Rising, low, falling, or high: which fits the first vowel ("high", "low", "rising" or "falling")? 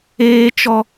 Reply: high